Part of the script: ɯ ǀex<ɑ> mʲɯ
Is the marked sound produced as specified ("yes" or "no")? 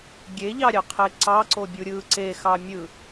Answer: yes